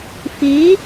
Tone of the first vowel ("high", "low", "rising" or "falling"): rising